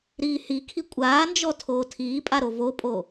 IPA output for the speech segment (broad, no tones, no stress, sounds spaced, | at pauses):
ɾ iː h i kʰ i kʷʼ aː n d͡ʒ ɔ tʰ oː tʰ iː pʼ a ɾ o v o pʼ o